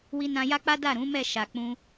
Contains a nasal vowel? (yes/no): yes